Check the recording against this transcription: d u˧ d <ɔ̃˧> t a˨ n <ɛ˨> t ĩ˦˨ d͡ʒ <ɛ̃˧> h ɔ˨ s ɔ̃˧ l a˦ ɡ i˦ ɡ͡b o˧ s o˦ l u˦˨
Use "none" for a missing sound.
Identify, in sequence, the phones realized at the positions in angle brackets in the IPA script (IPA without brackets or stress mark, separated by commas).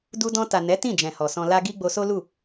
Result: ɔ̃˧, ɛ˨˦, ɛ̃˨